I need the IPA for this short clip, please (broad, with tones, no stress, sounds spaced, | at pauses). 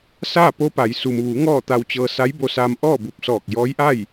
s aː˥˨ p o˧˥ p a˩˧ j s u˩ m ʋ u˩˧ ŋ ɔː˥˨ t̪ a˧ w t͡ɕ ɤː˧ s a˧˥ j b o˧ s aː˧ m ʔ ɔː˥˨ b u˧˩ p̚ s ɔː˧˩ k̚ j ɔː˧˥ j ʔ a˥˨ j